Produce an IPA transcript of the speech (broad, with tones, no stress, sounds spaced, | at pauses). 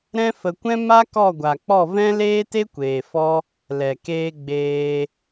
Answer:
ɾ ɛ̃˦ f ə˧ kʷ ɛ̃˦ m a˦ k ɔ˦˨ ɡʷ a˨ k͡p ɔ˦˨ v ɛ̃˦ l eː˦ t e˦ kʷ eː˨ f ɔ˦ | l ɛ˨ k eː˧ ɡ͡b eː˧